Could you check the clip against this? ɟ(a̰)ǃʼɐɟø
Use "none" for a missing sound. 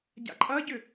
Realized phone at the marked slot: a̰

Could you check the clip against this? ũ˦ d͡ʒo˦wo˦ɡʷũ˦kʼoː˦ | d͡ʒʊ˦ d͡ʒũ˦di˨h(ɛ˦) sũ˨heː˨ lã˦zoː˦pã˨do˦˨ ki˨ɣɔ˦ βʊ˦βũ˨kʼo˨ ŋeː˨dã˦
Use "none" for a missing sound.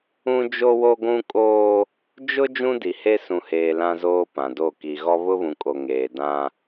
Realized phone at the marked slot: e˦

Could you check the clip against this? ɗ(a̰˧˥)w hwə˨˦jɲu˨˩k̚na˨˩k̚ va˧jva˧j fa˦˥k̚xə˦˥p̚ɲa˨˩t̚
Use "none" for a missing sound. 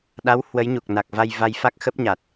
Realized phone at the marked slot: a˨˦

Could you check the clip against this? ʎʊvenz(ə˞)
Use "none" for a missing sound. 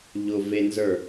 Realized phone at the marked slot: ə˞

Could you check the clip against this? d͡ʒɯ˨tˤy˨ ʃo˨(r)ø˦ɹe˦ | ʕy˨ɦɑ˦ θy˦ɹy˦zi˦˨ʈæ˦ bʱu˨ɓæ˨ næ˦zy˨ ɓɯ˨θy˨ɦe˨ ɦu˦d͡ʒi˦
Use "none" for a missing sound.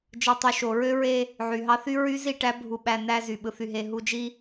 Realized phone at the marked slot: ɹ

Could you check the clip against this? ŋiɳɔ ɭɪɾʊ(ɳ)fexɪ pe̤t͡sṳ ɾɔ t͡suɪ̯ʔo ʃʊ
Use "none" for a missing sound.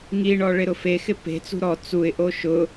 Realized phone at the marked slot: none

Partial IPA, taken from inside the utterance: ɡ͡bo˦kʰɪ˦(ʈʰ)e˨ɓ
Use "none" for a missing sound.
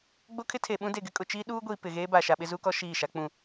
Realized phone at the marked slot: tʰ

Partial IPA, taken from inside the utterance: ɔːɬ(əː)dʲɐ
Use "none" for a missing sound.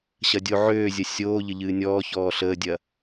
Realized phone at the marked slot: əː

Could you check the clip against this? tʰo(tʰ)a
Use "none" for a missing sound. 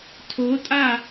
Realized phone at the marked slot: tʼ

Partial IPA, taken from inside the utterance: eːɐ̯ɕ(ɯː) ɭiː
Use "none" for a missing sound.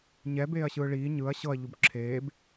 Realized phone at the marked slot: ɯː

